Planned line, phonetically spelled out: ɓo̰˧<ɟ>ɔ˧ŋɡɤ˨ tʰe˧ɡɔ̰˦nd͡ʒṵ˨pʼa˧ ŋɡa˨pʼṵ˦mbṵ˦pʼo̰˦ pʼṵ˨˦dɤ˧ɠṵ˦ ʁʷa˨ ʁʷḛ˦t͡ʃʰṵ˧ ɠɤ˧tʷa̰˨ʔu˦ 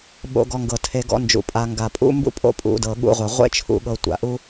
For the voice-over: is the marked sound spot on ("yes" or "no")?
no